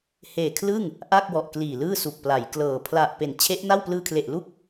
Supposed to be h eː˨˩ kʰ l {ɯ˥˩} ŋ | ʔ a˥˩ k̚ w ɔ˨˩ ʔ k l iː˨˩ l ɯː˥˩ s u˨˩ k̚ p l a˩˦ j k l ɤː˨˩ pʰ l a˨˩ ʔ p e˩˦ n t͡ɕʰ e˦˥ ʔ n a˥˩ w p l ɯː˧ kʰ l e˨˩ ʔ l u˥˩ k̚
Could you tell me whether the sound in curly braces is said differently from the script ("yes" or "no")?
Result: no